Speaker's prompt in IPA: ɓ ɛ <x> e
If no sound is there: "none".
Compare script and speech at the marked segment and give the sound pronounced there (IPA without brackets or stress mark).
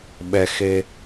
x